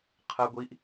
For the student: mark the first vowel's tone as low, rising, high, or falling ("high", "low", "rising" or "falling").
low